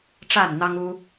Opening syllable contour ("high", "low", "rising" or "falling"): falling